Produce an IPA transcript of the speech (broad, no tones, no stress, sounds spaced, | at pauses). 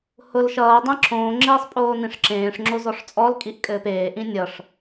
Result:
h ʊ l ʃ ʌː dˤ ẽ ǁʰ õː ŋ͡ǁ eː sˤ pʼ oː n ĩ ʂ ǁ ẽː ʂ ŋ͡ǁ o z ɔ ʂ t͡sʼ ɔ l kʼ i ʔ kʼ ɘː p eː ʔ ĩ nʲ ʌ ʂ